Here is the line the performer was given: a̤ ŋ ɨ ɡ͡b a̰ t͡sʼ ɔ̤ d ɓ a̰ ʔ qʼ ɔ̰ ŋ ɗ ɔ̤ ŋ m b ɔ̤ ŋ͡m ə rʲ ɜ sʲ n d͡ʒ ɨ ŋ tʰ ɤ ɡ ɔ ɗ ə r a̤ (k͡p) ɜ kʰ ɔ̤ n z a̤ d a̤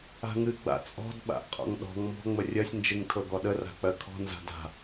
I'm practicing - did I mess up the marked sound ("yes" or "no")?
no